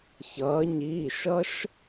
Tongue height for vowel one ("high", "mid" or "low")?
mid